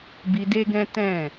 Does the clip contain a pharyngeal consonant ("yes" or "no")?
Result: no